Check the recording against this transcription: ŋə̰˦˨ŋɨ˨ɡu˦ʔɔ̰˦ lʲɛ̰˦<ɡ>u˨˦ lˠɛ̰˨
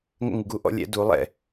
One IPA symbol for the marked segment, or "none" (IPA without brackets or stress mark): d